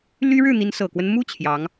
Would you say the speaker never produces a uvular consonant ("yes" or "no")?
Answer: yes